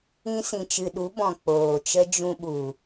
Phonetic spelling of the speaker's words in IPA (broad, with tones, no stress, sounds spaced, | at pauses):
ĩ˧ s ĩ˨ t͡ʃ ɨ˨ ɗ u˨˦ b ɔ̃˨ k͡p oː˨ t͡ʃ ə˦ d͡ʒ ũ˧ ɓ u˨